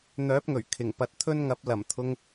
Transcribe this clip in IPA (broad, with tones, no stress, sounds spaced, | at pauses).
n̪ œː˨˥ p̚ ŋ ɵ˨˩ ɥ kʰ ɪ˨˩ ŋ p ɐ˨˥ t̚ t̪ʰ ɵ˥ n ŋ ɐ˨˥ p̚ l ɐ˨˩ m t̪ʰ ʊ˧ ŋ